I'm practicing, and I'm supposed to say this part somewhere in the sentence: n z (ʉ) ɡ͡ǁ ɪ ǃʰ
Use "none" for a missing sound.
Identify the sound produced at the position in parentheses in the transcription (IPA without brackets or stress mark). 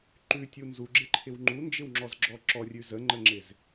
u